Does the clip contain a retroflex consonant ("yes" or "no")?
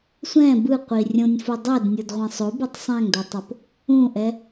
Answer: no